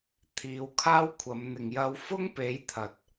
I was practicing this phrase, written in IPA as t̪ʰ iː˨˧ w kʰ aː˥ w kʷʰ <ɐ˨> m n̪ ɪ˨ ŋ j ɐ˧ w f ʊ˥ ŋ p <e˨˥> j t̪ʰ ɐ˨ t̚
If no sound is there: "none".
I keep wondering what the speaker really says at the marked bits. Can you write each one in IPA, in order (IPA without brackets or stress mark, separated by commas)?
ɐ˨˧, e˨˥